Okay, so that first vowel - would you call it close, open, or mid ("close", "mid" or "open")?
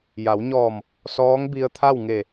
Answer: open